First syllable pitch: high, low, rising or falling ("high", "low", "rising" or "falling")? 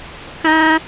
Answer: high